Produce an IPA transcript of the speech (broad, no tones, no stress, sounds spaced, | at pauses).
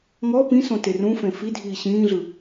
ŋ ɔ p ĩ s õ t e r ũ f ẽ f i dʱ iː ɕ ĩː ɮ ɯ